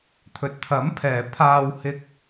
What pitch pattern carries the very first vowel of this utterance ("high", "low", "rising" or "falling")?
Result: low